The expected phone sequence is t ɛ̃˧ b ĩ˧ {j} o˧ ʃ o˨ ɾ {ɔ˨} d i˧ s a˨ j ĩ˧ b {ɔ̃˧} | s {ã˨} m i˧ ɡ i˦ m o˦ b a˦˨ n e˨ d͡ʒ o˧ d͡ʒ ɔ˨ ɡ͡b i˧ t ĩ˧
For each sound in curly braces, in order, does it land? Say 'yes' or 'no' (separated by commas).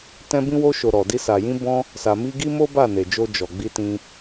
no, yes, yes, no